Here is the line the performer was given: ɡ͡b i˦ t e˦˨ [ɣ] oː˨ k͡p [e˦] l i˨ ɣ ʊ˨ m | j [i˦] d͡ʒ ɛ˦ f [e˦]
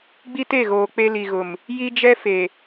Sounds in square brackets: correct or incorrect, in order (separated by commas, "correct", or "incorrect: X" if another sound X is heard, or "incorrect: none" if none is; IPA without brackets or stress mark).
correct, correct, correct, incorrect: e˨